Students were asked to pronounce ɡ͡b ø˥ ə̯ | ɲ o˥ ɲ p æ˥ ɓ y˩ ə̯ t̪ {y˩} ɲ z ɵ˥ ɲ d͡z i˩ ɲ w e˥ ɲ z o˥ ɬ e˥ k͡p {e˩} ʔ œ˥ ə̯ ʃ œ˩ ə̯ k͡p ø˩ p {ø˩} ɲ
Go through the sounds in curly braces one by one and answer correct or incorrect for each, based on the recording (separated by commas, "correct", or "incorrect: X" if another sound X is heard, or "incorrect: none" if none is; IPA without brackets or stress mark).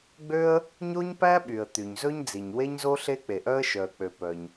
correct, correct, incorrect: œ˩